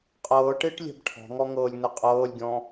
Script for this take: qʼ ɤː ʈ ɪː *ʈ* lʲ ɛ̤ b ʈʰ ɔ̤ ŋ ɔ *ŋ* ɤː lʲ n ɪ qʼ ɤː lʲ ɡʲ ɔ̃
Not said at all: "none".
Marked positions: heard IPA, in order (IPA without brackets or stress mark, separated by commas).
ʈ, ŋ